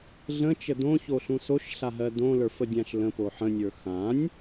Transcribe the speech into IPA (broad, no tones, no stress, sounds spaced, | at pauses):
ɮ ə̃ t͡ʃ ə d õ ç o ɬ ũ s o ʃ ɬ a ɦ ɜ d õ l ə˞ f ə dʲ ã ʃ l ə̃ p o ħ ə̃ nʲ ə˞ x ã nʲ